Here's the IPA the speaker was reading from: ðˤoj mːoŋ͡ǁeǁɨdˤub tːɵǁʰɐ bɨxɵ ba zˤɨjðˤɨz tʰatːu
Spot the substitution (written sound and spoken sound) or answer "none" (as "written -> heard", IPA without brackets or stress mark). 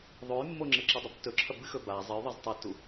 tʰ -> tˤ